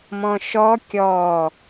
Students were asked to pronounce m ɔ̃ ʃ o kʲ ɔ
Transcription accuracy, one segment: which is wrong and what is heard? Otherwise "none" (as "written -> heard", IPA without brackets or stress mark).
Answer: o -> ɔ